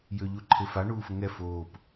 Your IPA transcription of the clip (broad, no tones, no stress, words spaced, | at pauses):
jøʎuǃʰefa ɳuːfəŋɛ foːp